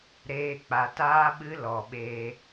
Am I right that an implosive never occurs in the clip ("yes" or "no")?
no